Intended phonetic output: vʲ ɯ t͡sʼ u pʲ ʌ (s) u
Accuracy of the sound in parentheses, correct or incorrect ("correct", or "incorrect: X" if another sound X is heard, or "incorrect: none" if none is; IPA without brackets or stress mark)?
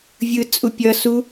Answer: correct